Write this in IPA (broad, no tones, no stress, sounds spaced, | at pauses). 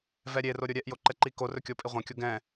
v ɛ ɾʲ e r o ɾʲ o ɾʲ ɛ ʔ j o ǃ ɛ ǃ i k o r ɵ kʲ o pʼ i ʁʷ ɛ̃ kʲ o ɡ ɛ̃